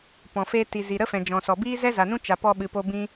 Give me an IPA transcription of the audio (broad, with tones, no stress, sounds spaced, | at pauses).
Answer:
p ɔ̃˨ f e˧ t i˨ z i˨ ɾ ə˦ f ɛ̃˨ d͡ʒ ɔ̃˨ s ɔ˨ b iː˦ z ɛ˦ z a˨ n ũ˦ t͡ʃ a˨ p ɔ˧ ɓ ɨ˨ p o˧ b ĩ˧